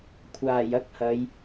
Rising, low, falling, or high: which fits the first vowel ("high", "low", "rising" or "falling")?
low